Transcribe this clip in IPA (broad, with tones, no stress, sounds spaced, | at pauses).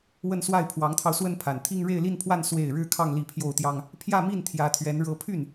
w ə˥˧ n s w a˥˩ ɪ̯ pʰ w ɑ˧˥ ŋ t̪ʰ ɑ˧ ʊ̯ s w ə˥ n pʰ a˨˩ n t̪ʰ i˥ ŋ ɻ e˥˧ ɪ̯ l i˥˧ n pʰ w a˥˧ n s w e˥˩ ɪ̯ ɻ ɻ̩˥ kʰ ɑ˥˧ ŋ l i˥˧ pʰ j o˥˩ ʊ̯ t̪ j ɑ˥ ŋ | pʰ j ä˥˧ m i˥˩ n t̪ʰ j ä˧˥ t̪ʰ ɥ ɛ˧˥ n ɻ ɤ˧˥ pʰ y˥˩ n